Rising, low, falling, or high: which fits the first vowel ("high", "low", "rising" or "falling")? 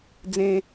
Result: high